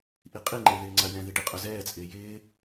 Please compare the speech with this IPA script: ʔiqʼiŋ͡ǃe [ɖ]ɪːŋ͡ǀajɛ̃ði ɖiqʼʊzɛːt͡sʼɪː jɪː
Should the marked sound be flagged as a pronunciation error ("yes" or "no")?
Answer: yes